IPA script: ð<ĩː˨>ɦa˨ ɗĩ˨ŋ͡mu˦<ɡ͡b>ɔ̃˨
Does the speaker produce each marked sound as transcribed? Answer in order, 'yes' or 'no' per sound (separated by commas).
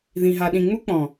no, no